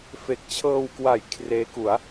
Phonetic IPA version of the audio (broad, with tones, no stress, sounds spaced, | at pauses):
f e˨˩ k̚ t͡ɕʰ ɤː˧ w k w a˨˩ j kʰ r eː˦˥ k u˩˦ a̯